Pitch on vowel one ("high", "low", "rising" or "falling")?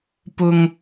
high